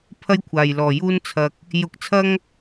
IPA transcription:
pʰɐ˥jkʷʰaː˨jlɔː˨juː˥n t͡sʰɐ˧k̚ | jʊ˧k̚t͡sʰɐ˥ŋ

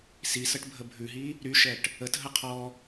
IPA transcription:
sisəʈbʱə bʱʉɦi | ɾyʃɛʈ | ətɦə qʰɔ

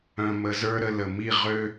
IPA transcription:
œ̃˧mə˧zə˞˦ ɾə˧lə˨mi˦˨ ʁø˦

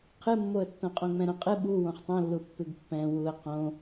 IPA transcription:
qʰɨmːoə̯tːõ qʼõŋ͡mɛ̃ɾõqʼɨ ɓu wõχtˤõlːu pːɨɡpːɛ̃ wuə̯ qõ

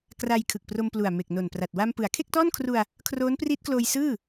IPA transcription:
kra˧j kʰɯ˨˩k̚pro˧mplu˨˩a̯ me˨˩k̚no˨˩npra˨˩t̚ wa˧m pɯ˩˦a̯kʰe˥˩k̚tɔː˥˩nkʰru˧a̯ | kʰroː˦˥npriː˦˥t̚kloː˧j sɯː˥˩

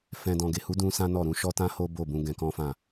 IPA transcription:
fɛ̃˨dɔ̃˨ɡe˨hu˨˦ dũ˦sã˦nɔ˦˨ɾũ˧ ʃɔ˦tã˦ho˦ bo˦˨bũ˧ ɡɛ̃˧kɔ̃˦fã˦˨

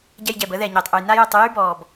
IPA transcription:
ɟɛ˧jɟɛː˩bəː˥ðɛː˩ ɲeː˩tˤʔu˩j na˥jœ˧tˤ y˥jy˥bɔː˩b

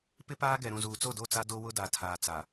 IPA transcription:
pɪ˦paː˦ɡɛ˨ɾũ˨ zuː˨t͡so˦˨do˦˨t͡sa˦ do˦wʊ˦da˨ tʰaː˨ t͡sa˨

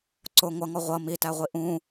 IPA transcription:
ǀʊ ŋʷʌŋɔ ʁʷʌ mitæʁʷi ʔũ

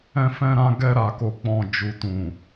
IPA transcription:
ɛ̃˧fɛ̃˧ɾã˧ ɡɛ˧ɾa˨ko˨k͡pɔ̃˨ d͡ʒu˨tũ˨

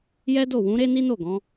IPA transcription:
jɛ˦do˦˨ wũ˨˦ ɾe˦ni˦no˦˨ ɡɔ̃˨˦

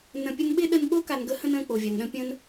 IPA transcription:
nə̃˧pʲə˥n ɓɪ˥ɗə˧nɓo˥ ka˧nɡə˥hə̃˥nə̃ː˧ k͡po˩vʲa˩nɗə̃˧ pʲə̃˧n

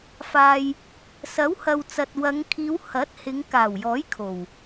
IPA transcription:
faː˨j | sɐ˨˥w hɐ˨wt͡sɐ˨t̚wɐ˨˧ŋkʰiː˨˧w hɐ˨˥t̚hɪ˨˧ŋ kaː˨˩wjɔː˨˥j kʰo˨˩w

